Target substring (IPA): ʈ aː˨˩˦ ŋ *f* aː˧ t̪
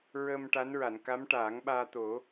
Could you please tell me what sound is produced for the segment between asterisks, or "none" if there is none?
ɓ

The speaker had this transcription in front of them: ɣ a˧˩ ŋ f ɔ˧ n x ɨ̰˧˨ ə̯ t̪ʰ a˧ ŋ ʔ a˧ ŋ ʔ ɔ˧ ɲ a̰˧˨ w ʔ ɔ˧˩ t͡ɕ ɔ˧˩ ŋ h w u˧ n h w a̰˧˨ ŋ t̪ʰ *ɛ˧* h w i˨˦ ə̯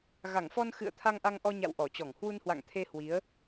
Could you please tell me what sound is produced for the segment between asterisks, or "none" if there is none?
e˧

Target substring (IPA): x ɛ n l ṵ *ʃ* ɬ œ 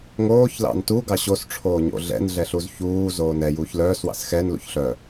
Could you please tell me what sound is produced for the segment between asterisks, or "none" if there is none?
ç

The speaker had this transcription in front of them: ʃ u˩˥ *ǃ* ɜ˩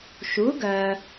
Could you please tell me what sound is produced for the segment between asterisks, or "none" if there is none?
ɡ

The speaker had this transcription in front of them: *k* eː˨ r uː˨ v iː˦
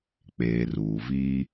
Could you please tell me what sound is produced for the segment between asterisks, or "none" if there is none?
k͡p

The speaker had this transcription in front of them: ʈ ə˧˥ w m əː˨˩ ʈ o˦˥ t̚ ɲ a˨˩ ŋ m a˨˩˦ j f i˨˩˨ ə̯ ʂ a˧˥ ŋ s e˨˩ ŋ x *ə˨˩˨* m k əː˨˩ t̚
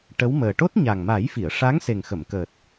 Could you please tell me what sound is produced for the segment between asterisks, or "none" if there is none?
ə˨˩˨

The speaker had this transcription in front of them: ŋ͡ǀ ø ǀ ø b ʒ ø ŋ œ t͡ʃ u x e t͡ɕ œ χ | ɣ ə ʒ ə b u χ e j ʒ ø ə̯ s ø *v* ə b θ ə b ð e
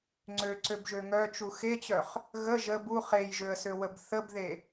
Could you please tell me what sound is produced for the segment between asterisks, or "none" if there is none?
w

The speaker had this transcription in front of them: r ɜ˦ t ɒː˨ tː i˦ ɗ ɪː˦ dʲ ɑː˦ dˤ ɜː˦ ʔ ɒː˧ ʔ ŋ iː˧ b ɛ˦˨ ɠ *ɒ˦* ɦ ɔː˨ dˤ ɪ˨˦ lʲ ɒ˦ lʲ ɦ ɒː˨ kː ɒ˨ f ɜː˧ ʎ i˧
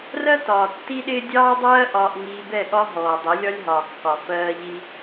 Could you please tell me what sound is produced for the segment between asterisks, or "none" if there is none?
ɒ˦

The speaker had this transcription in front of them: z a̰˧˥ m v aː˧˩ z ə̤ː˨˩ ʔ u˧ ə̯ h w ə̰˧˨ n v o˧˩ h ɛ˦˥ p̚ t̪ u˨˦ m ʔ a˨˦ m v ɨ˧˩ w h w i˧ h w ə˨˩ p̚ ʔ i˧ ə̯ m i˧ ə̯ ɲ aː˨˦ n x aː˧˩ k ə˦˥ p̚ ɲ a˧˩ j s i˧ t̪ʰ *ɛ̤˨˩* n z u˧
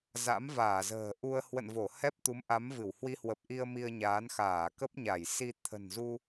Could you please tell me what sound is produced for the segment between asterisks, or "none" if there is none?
ə̤˨˩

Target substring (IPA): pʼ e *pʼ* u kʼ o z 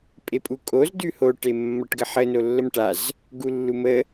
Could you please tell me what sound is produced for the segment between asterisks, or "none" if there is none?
pʼ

